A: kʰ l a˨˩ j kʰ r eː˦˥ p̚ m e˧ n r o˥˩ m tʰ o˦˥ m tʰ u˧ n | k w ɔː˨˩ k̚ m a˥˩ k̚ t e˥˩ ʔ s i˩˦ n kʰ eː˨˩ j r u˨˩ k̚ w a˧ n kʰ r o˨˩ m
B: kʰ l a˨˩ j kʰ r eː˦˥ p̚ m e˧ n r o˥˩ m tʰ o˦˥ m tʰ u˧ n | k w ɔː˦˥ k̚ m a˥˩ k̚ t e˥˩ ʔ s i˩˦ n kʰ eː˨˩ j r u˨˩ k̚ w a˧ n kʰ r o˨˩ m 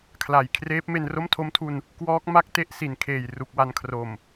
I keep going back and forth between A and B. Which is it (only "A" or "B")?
B